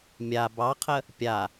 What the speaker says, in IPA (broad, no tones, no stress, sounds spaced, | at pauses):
mʲ a b ɑ qʰ ə | pʲ a